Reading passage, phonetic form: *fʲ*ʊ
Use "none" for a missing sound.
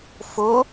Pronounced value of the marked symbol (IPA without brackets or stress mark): f